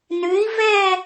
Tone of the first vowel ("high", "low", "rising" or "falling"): rising